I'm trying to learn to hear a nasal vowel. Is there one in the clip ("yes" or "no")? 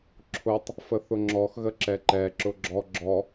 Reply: no